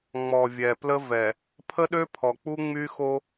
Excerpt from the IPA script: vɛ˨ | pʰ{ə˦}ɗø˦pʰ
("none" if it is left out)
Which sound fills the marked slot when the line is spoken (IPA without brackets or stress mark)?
ə˦